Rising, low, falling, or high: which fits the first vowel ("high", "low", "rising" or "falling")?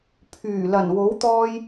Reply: low